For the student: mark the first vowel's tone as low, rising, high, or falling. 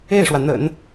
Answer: falling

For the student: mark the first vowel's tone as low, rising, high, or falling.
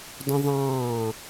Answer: high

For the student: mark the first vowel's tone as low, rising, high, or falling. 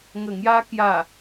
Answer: low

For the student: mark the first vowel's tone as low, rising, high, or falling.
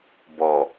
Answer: low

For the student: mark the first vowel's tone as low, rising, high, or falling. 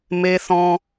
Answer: high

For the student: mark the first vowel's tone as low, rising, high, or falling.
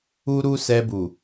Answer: high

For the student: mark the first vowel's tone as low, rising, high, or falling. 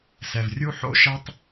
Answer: low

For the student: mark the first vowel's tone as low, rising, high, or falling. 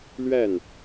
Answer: falling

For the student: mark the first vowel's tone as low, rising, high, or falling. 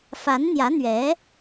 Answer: rising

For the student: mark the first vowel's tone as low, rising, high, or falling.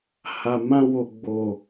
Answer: low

